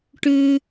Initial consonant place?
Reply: retroflex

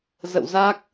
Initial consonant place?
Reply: alveolar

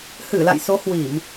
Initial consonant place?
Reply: glottal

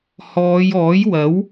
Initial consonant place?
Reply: glottal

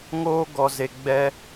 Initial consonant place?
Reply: velar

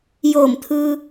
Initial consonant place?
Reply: palatal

